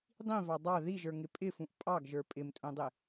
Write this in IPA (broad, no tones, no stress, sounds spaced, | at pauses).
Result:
dˤ ĩ v ɑ dˤ ɑ ð i ʒ ə˞ ŋ ɪ pʼ ɪ f ũ ʔ pʼ ɑ ɡ ʒ ə˞ pʼ ɪ m tʼ ũ dˤ ɪ